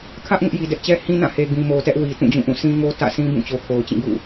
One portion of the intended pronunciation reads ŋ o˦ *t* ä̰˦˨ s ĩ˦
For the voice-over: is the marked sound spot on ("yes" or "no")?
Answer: yes